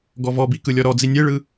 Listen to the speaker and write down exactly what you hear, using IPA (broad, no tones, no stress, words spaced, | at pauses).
ɡɔvɔbi kɯlʲɔɾɔd͡zi nʲeɭɯ